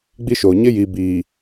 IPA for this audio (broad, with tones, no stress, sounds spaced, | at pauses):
ɡ͡b i˦ ʃ oː˨ ɲ ɪ˦ j i˨ b iː˨